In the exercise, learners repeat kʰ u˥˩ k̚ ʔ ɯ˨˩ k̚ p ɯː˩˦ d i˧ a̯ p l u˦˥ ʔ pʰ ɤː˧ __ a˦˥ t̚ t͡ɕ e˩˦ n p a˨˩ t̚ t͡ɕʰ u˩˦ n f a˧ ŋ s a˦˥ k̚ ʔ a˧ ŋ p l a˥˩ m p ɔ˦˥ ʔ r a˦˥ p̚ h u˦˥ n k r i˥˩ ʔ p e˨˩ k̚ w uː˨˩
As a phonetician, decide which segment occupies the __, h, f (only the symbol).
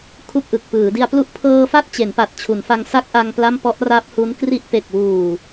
f